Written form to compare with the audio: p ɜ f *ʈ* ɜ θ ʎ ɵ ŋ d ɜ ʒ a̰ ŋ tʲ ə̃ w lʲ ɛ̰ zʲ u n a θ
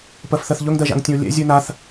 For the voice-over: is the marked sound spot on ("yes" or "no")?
no